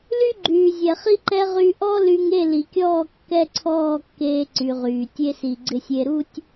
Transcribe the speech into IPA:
l y˦ ɡ͡ǃ yː˨ zʲ ɛ˨ χ i˦ ǃ ɛ˦ ʁ y˧ ʔ ɔ˦ l y˧ ŋ e˦˨ l i˨ kʲ ɔː˦˨ kː ɛ˦ ǀʰ ɔː˦˨ kː eː˧ ǀ y˨ ʁ yː˨ tʲ e˧ s i˨ ɡ͡ǀ ɪ˧ sʲ e˧ ɾ u˦ tʲ

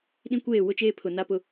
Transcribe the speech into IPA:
ɗ ĩ˦ kʷ eː˦˨ w ʊ˦ t͡ʃ eː˦ pʰ ʊ˨ n a˦ p ʊ˦

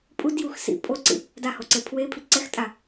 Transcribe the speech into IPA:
pʼ u d j u x s ḭ pʼ o ǀ ḭ | d a h o ǀ e pʰ w e pʰ i ǀ ɛ x tʼ a

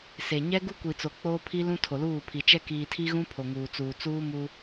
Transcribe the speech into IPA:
s e˨ ɲ ɛ˦ ɡ u˦ kʷ i˨ t͡s o˨ k͡p oː˦ pʰ i˦ l ũ˦ tʰ o˨ l uː˦˨ pʰ i˨ t͡ʃ ɛ˦ k iː˨ tʰ i˦ ɣ ũ˦ pʰ o˨ ŋ uː˨ t͡s uː˨ t͡s uː˦ m u˦

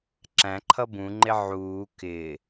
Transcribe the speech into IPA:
ǁ æ̃ ǃʰ ʌ b ũ ŋ͡ǃ ɪ ʕ uː k ɪ

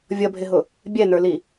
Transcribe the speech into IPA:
vʲ ʌ bʱ ɪ ɦ ʊ | bʲ ɛ n ə˞ l i

